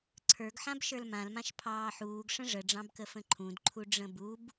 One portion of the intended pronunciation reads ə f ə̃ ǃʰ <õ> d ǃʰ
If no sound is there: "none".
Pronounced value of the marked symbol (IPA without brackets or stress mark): ũ